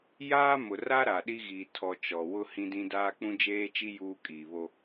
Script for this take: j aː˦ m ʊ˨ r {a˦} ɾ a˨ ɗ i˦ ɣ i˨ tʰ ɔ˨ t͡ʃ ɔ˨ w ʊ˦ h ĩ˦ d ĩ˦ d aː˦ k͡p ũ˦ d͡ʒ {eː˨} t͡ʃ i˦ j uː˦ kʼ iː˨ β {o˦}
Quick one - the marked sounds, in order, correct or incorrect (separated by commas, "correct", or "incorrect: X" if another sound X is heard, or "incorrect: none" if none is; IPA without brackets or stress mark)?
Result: correct, incorrect: eː˦, correct